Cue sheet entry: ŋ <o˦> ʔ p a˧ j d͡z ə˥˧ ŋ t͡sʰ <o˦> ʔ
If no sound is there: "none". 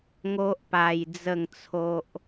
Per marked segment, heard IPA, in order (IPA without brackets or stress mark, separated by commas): o˦, o˦